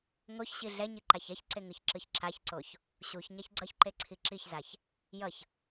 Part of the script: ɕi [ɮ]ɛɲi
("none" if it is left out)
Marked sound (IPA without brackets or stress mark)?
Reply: ɮ